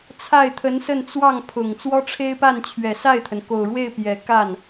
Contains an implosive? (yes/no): no